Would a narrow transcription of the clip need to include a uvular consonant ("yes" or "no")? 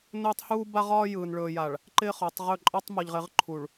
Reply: yes